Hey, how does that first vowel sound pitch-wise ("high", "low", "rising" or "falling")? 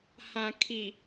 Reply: low